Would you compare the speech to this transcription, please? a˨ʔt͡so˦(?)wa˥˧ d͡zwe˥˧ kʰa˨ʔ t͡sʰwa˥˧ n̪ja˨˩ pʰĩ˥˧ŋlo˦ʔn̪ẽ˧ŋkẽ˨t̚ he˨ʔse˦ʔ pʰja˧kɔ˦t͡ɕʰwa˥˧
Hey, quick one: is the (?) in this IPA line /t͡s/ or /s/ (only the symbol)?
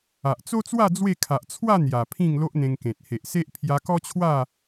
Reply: t͡s